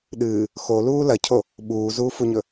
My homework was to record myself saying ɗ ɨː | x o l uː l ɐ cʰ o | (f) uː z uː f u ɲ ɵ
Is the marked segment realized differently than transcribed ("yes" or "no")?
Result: yes